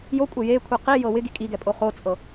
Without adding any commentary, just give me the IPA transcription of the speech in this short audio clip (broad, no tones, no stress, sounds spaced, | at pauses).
j o kʷʼ e j e kʷʰ i q i j ɤ w ɪ ɡ i kʼ i ɡ ɛ pʼ o χ o t͡sʼ ɤ